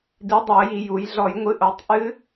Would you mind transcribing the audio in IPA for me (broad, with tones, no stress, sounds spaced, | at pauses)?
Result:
d i˨˥ dˤ ɯ˧˩˧ ə̯ j i˧˩˧ j u˩˧ j ɮ ɔ˧˩˧ j ŋʷ ɨ˨˥ ʔ o˩˧ tˤ ʔ ɨ˦˥